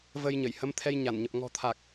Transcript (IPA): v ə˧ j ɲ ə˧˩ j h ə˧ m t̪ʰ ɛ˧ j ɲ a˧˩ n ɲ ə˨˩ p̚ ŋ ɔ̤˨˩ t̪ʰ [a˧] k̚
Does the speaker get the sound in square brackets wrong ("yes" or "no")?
yes